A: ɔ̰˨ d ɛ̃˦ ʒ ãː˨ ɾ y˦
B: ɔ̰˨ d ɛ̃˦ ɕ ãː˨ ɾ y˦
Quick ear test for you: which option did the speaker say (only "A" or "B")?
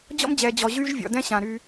B